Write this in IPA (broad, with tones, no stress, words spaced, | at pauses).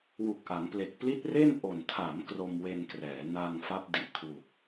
wu˨˩k̚ʔa˩˦ŋple˨˩k̚ pli˦˥t̚re˥˩n ʔo˨˩n tʰa˩˦m kro˧mwe˧nkrɛː˩˦ na˧ŋfa˦˥p̚ di˨˩ʔkʰwu˨˩k̚